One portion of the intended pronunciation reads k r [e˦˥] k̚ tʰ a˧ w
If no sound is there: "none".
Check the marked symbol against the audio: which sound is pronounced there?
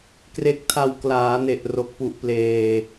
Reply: e˦˥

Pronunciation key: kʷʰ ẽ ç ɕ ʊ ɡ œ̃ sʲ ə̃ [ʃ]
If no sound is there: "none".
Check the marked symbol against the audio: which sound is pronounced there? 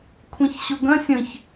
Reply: ç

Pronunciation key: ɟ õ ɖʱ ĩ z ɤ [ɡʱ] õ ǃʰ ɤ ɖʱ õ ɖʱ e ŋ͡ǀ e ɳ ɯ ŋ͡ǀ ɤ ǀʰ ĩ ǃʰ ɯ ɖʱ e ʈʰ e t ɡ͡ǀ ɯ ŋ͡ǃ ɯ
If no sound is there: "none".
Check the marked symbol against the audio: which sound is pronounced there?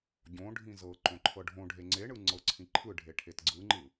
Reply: ǃ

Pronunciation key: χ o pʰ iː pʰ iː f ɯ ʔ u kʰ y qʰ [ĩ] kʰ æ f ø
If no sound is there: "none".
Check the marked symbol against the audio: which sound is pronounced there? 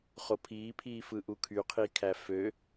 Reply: i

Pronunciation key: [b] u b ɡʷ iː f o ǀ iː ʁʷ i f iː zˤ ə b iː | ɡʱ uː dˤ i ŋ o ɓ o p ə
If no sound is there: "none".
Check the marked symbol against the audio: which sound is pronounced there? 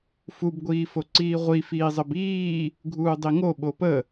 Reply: f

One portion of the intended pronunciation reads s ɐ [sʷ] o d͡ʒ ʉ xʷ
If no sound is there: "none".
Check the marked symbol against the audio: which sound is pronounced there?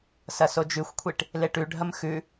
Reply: s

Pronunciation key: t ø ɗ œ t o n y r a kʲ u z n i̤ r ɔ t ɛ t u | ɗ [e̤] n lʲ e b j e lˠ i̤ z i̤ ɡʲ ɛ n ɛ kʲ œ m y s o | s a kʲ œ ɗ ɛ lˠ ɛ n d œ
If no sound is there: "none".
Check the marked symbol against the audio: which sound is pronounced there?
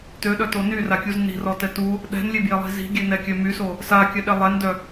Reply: ɛ̤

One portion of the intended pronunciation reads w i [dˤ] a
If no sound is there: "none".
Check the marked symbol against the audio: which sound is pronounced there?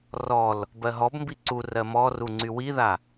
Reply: ð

